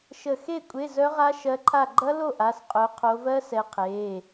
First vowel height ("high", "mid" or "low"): mid